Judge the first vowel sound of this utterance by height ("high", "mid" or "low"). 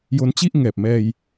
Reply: mid